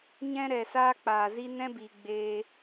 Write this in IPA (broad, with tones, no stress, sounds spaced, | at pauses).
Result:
ɲ ɛ̃˦ ɾ ɛ˨ s aː˦ k͡p aː˨ z i˦ n ɛ̃˦ b iː˨ ɡ͡b e˧